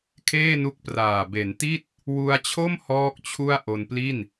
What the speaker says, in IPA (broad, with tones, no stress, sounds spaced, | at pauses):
kʰ eː˥˩ n u˦˥ k̚ p r aː˨˩ b e˩˦ n t i˥˩ t̚ | w u˧ a̯ t͡ɕʰ o˥˩ m h ɔː˥˩ k̚ t͡ɕʰ u˥˩ a̯ ʔ o˧ n p l i˥˩ n